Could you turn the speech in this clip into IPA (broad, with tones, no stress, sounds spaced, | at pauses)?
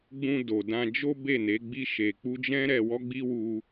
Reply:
ɡ͡b ũ˧ d o˨ d ã˧ d͡ʒ o˦ b e˦˨ n e˨˦ ɡ͡b i˦ ʃ e˧ k͡p u˦ d͡ʒ ɛ̃˦ ɾ ɛ˧ w ɔ˦ ɡ͡b i˦ w u˦